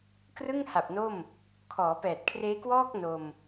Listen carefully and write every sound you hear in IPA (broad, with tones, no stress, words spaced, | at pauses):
krɯ˥˩ŋha˨˩p̚ no˥˩m | kʰɔː˩˦pɛː˨˩t̚kʰreː˦˥kwɔː˥˩k̚ no˧m